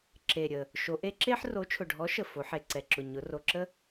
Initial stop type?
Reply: click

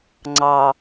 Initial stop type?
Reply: click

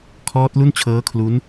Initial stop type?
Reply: aspirated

